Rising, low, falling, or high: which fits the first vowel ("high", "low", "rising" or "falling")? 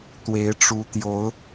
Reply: rising